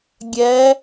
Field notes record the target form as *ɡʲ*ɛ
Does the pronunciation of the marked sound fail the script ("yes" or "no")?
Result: no